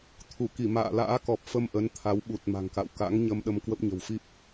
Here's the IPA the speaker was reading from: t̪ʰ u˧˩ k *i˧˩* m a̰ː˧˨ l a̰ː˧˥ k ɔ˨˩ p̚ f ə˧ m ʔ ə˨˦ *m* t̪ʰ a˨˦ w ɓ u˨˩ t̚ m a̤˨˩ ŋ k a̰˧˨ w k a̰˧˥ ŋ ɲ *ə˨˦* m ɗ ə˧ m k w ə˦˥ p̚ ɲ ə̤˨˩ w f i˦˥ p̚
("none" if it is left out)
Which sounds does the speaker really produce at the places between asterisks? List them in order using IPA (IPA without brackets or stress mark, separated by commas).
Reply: i˧˩, n, ə˧